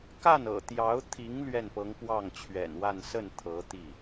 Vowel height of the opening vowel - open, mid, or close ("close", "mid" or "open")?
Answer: open